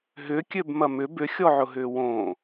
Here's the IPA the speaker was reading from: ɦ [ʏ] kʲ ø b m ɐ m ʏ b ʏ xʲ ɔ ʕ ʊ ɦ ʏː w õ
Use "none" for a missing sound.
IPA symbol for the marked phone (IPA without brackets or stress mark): ʏ